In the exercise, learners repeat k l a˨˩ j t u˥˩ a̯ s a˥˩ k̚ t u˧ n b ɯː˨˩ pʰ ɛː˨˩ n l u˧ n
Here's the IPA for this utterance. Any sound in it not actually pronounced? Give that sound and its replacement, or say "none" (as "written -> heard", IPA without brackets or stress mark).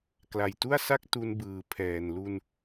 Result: none